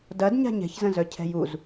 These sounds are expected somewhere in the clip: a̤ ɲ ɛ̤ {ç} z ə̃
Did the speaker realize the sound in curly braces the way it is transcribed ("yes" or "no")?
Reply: yes